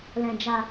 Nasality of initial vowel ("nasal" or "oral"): nasal